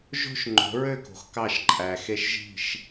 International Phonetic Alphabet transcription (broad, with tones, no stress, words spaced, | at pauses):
ʒo̤˦ʃ ŋ͡ǃo̤˨˦ɹø˦˨ko̤˨x kɑ˦˨ʃǃʼæ˨xe˦ʃʒi̤˦˨ʃ